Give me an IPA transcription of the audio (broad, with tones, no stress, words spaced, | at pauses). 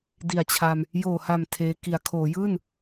di˨˩a̯t͡ɕʰa˧m | joː˨˩ha˨˩m tʰeː˧ ki˩˦a̯kʰoː˩˦jɯː˥˩n